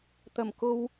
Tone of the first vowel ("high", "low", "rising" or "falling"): low